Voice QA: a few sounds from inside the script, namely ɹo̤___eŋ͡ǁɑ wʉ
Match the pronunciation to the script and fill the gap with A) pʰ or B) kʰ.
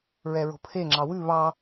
A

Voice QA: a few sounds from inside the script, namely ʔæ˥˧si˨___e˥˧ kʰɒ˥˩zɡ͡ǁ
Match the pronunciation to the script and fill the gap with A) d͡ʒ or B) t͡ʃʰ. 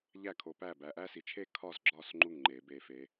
B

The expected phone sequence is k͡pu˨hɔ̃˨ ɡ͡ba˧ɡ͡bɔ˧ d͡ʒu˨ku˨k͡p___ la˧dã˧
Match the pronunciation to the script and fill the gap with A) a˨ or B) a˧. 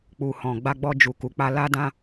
B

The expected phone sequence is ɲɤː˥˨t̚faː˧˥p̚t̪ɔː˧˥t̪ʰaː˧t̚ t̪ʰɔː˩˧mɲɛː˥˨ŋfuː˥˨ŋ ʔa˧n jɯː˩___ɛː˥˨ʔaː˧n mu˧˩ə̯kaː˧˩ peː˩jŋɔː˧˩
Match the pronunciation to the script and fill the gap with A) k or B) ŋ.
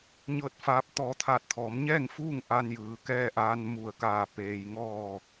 A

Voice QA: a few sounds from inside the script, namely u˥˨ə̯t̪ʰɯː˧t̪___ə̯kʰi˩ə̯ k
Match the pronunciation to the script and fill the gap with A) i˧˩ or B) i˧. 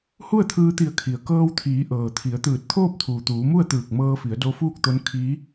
A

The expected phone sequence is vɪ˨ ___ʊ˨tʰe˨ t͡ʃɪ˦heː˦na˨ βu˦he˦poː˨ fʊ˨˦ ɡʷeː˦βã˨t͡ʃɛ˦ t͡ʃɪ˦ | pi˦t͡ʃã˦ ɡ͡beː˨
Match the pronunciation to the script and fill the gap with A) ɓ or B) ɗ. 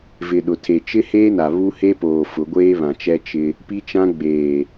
B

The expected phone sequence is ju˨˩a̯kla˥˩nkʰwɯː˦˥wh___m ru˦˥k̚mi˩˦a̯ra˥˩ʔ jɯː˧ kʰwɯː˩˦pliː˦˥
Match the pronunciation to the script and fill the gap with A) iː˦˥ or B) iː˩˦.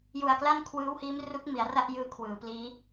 A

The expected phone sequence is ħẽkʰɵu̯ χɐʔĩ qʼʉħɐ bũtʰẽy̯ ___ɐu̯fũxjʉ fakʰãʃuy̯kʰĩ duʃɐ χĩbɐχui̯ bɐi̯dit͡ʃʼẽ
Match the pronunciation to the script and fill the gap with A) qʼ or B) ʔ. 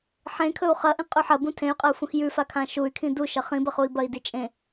A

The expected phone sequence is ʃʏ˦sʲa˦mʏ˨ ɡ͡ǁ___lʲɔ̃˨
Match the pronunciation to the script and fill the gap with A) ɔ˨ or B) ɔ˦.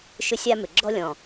B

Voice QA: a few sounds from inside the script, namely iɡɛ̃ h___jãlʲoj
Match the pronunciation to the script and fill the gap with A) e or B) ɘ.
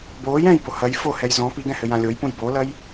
B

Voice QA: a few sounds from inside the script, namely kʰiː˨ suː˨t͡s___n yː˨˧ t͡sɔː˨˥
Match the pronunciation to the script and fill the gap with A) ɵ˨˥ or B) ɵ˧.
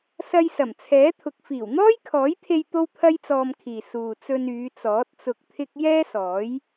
B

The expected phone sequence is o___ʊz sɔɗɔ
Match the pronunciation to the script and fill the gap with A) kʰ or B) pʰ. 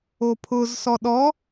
B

